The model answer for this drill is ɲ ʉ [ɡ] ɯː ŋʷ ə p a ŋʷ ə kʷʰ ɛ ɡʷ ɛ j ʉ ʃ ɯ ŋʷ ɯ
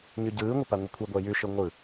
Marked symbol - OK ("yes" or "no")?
no